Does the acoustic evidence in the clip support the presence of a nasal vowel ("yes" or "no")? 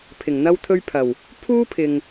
no